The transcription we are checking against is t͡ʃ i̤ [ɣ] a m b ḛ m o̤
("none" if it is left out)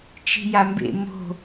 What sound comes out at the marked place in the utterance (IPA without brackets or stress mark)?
j